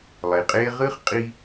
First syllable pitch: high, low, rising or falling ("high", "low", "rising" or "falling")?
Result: low